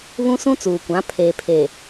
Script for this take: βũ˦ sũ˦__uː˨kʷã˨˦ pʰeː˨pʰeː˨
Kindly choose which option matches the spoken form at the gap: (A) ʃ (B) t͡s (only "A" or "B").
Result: B